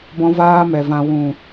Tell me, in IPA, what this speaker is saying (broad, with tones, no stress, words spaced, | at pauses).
bɔ̃˧vaː˧mɛ˨ vã˨wũ˨